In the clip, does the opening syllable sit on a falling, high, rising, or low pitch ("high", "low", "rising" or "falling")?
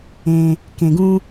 low